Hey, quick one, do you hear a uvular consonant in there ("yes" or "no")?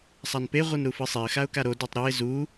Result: yes